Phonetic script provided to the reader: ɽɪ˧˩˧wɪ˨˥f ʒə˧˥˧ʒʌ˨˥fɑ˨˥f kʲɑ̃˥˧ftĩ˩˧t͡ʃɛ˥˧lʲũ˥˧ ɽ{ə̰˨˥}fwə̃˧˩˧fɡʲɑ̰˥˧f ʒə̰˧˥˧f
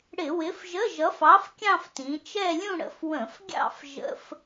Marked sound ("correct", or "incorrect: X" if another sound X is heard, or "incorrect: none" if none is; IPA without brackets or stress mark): correct